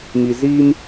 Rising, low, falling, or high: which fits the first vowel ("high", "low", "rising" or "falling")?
low